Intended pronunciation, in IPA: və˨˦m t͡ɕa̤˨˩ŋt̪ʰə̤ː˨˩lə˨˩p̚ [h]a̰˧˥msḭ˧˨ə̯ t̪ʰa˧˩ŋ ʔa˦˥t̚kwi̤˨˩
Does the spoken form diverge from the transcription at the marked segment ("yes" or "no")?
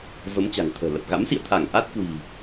yes